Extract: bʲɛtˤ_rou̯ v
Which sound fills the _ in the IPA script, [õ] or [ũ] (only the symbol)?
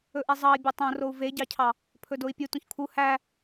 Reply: õ